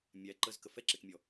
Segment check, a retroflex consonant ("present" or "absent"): absent